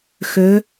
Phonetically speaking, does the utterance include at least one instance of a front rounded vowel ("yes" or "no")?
yes